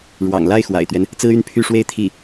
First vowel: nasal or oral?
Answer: oral